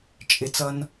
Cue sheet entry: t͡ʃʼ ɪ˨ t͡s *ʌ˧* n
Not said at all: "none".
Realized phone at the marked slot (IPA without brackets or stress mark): ʌ˧